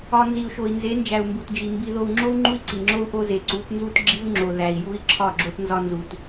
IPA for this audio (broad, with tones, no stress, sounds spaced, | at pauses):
ɒ˨ n z i˨ u̯ ʃ o˨ i̯ n z e˨˦ n d͡ʒ æ˨ u̯ m b u˨ t d͡ʒ i˨ m b i˨ ð o˨ u̯ ŋ͡ǁ o˦ u̯ ŋ͡ǃ u˦ i̯ ǀ i˨ ŋ͡ǁ o˦ u̯ ʔ o˦ z e˨ ǀ u˨˦ t n z u˦ t ɡ͡ǁ i˦ u̯ ŋ͡ǁ o˨ ð æ˨ i̯ j u˦ i̯ ǁʰ ɒ˦˨ ɡ͡ǁ o˦ t n z ɒ˦ n z u˨ t